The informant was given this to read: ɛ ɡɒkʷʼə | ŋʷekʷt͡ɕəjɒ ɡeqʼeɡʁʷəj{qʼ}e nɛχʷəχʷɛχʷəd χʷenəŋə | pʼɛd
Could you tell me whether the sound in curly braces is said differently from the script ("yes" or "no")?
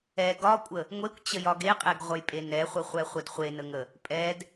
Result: yes